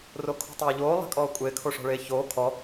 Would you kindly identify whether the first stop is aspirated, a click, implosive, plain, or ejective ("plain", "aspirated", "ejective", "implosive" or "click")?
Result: aspirated